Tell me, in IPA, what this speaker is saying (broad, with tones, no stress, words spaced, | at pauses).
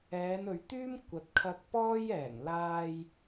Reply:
ɛː˨˧nɵ˨ɥt̪yː˥m kʷɐ˨˥t̚kʰɐ˧k̚pɔː˥j ɛː˨˩ŋlaː˧j